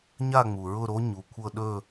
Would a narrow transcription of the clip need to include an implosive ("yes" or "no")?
yes